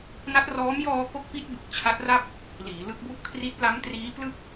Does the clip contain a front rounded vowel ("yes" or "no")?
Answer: no